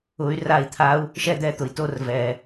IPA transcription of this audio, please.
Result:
ʊ˧˥ y̯ r a˦˨ i̯ t̪ʰ a˧˥ u̯ | ʃ ɛ˦˨ d̪ ɛ˧˥ t̪ ʊ˩ i̯ t o˦˨ r v ɛ˩

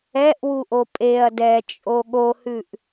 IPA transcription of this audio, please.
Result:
ɛ ʔ w u ʔ o pʼ e ɐ̯ d ɛ t͡ʃʼ o ɠ o h ʉ ʔ

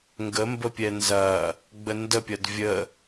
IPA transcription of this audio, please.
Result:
ŋ ɡ ə m b ə pʲ ɛ n z ɐ | ɡ͡b ə n d ə pʲ ɐ d vʲ ə

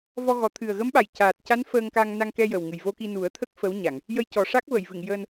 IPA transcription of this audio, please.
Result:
v ɔ˧ ɣ ɔ˨˩˦ t̪ʰ ɨ˨˩ ə̯ ɣ ə˧˥ m ɓ a˨˩ j c aː˨˩ t̚ c a˧˥ n f əː˧ ŋ k a˧ ŋ n a˧ ŋ k ɛ˧ j ə˨˩ w ŋ ɨ˨˩ j v o˧ k i˧ n u˨˩˦ ə̯ t̪ʰ ə˦˥ k̚ f ə˧˥ w ɲ a˨˩˨ ŋ | j ə˧ j c ɔ˨˩ ʂ a˦˥ k̚ v ə˨˩˨ j v ɨ˨˩˨ ŋ j əː˧ n

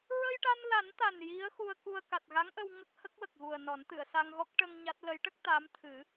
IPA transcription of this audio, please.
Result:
ɹ ə˧ j ʈ a˧ n l a˨˩˦ n t̪ a˨˩ n j i˧˥ ə̯ x u˧ ə̯ k u˧ ə̯ k a˨˩ t̚ ɣ a˧˥ ŋ ʔ ə˧ w ŋ ə˦˥ k̚ h ə˦˥ k̚ w ə˨˩ k̚ ɣ u˨˩ ə̯ n ɔ˨˩˦ n t̪ ɨ˨˩˨ ə̯ s a˧ ŋ ɣ ɔ˦˥ k̚ ʈ ə˧ ŋ ɲ a˦˥ t̚ l ə˧˥ j ʈ ə˦˥ k̚ t̪ aː˧˥ m t̪ʰ ɨ˨˩˦

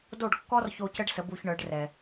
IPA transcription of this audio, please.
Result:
d o˥˩ ɖ kː ɔ˥ r ç o˧ c ə˥ ɖ s ə˩˥ b u˧ ç ɳ œ˩˥ ɖ r ɛ˩

